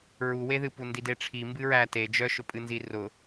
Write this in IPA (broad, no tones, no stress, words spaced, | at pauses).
ɹuweðɨpu ndideʈ͡ʂʰi mbɨɹæ te d͡ʒœʃʊ pʼɨnzirʊ